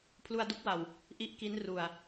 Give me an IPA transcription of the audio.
pʰlu˧a̯du˦˥k̚wa˨˩w | ʔi˦˥ʔ ki˦˥n ru˨˩a̯

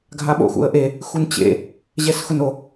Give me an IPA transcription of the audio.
ɡʱaɓo̰ xṵə̯ʔe | xunt͡ɕḛ | ʑɛsxʊno

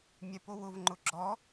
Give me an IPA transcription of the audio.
mʲɛpowʊv ŋ͡ǃʊɡ͡ǁɔ

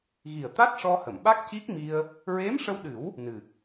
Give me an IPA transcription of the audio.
ɣi˨˩ə̯t̪a˦˥t̚ʂɔ˧hə˨˩˨m ɓa˦˥k̚ci˦˥k̚mi˧ə̯ | ɹe˧˥mʂə˧wɗɨ˨˩˦w | nɨ˨˩k̚

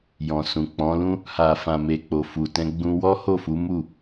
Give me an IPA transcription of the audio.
jɔ̃˨sũ˨k͡pɔ̃˨˦lũ˦ | ha˨fã˨me˨ k͡po˨fu˨tɛ̃˧ ɡ͡bũ˧wɔ˦ ho˦˨fu˨˦mu˦˨

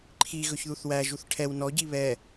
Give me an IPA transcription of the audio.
ǃʰiɣɵç ðuθwæʒuθ ʈʰɛw nɔɟi βɛ

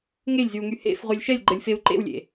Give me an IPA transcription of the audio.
ŋelʲzyu̯ŋy hḛfʁʷɛlʲ ʃɛlʲɡ͡ǃəlʲfeu̯ ǃḛwlʲḛ

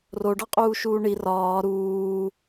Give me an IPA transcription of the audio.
roɖɒqʼuːʃuː ɳi rɒː ɾuː

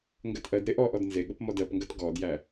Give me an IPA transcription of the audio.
ŋɡɜtʔɜdɾe ʔɔʔɔd nzeɠəp mɔdɜpŋɡɜt ɡɔdjæ

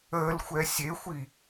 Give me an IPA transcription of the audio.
əːlxʷɛ sʲexʷi

